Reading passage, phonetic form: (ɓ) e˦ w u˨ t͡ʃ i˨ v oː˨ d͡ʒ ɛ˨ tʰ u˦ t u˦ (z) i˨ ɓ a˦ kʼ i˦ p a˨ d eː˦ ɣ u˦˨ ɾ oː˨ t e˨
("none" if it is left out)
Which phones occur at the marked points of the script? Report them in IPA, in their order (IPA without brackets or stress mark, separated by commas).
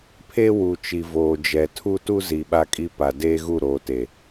pʰ, z